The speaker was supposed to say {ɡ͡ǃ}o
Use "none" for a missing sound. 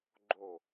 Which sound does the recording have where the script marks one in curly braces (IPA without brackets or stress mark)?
ɡ͡ǃ